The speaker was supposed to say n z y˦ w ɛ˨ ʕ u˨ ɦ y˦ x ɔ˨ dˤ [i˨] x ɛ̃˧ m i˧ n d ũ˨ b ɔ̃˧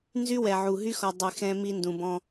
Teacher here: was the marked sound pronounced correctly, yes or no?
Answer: no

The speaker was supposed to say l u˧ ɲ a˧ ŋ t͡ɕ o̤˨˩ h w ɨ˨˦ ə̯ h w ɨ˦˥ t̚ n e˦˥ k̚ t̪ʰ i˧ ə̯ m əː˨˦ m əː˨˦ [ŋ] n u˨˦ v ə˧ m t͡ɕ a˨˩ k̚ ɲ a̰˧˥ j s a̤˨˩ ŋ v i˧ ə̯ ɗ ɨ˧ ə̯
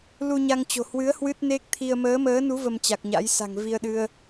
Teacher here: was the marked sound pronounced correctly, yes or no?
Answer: no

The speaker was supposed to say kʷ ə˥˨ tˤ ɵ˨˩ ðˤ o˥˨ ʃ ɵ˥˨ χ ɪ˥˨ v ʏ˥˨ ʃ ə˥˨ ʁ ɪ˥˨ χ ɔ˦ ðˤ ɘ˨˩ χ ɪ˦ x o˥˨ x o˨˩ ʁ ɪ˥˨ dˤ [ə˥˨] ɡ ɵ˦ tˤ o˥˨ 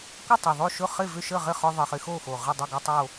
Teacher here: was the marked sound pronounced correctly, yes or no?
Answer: yes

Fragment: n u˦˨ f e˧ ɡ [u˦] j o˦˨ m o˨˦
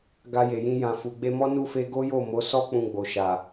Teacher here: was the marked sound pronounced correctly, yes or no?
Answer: no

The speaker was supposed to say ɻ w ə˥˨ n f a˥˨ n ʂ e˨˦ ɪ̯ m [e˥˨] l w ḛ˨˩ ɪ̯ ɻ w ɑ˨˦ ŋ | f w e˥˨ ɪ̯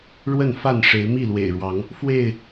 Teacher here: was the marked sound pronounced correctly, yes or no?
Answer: no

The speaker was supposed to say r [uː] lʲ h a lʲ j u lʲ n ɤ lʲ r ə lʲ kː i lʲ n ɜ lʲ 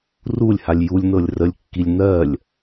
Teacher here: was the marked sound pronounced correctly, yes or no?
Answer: no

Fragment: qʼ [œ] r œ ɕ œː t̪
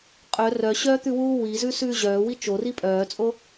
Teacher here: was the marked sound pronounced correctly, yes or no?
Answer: yes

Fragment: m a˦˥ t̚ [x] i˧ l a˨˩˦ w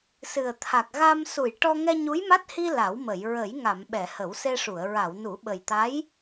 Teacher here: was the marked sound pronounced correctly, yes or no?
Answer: no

